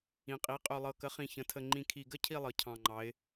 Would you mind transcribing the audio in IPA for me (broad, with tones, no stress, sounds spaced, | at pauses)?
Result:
ĩ˩˧ qʼ i˩˥ qʼ ø˨˩ lˠ ɤ˨˩ k ə˩˥ χ ĩ˨˩ ç ə̃˩˧ tʰ ə˨˩ ŋ͡ǃ ĩ˨˩ kʰ i˨˩ ɡ ə˥˧ cʰ i˥˧ lˠ ɤ˩˧ cʰ ɑ̃˨˩ ŋ͡ǃ ɑ˩˧ ɪ̯